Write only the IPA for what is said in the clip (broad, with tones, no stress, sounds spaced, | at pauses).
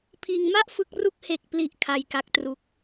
pʰ iː˧ ŋ m a˥˩ ʔ f ɯ˦˥ k̚ r u˥˩ k̚ h e˨˩ k̚ p l i˨˩ ʔ kʰ a˧ j k a˦˥ k̚ t r u˦˥ k̚